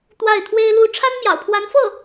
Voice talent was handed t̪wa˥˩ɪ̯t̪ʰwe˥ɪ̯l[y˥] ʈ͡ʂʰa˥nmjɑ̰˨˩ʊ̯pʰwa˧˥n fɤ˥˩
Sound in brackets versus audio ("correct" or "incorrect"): incorrect